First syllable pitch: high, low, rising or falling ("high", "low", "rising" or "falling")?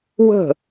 falling